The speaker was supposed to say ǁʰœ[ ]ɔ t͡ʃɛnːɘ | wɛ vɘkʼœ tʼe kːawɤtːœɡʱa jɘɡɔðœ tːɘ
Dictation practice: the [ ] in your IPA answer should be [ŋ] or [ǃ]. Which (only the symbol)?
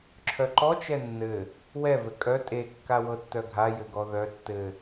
ǃ